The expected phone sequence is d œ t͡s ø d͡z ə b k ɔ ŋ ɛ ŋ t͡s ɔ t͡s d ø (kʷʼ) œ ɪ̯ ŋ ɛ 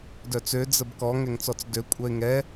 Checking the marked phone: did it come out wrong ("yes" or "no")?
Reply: no